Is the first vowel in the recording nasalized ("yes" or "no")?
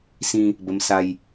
yes